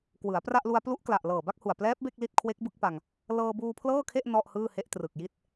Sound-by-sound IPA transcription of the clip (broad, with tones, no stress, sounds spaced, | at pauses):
k w ɯ˩˦ a̯ p r a˥˩ ʔ l u˧ a̯ p l u˦˥ ʔ k l a˨˩ ʔ l ɤː˨˩ b a˥˩ k̚ h u˨˩ a̯ p l ɛː˦˥ p̚ b e˥˩ k̚ l i˥˩ t̚ kʰ w e˦˥ k̚ b ɯ˦˥ k̚ p a˧ ŋ | l ɤː˧ b uː˧ pʰ l ɤː˥˩ kʰ e˥˩ ʔ n ɔ˥˩ ʔ h ɯː˥˩ h e˦˥ ʔ t r ɯ˨˩ k̚ j i˥˩ t̚